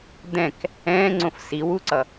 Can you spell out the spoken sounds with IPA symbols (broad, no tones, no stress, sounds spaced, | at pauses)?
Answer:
d̪ ɛ̃ k | ɛ̃ː ŋ͡ǀ õ f s i w u ǀ ʌ